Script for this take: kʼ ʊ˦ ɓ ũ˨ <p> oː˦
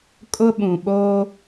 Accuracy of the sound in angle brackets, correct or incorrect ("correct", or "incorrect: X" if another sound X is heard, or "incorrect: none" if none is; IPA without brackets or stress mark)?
incorrect: ɓ